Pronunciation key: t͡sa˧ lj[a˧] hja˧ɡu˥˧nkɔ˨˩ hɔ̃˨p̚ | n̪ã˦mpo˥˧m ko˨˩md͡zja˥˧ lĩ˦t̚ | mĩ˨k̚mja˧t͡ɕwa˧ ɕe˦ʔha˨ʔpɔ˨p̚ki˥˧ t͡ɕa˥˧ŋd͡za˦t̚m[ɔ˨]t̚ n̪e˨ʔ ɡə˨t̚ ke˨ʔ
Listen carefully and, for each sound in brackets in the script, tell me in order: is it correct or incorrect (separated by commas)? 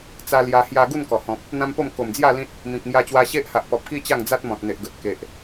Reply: correct, incorrect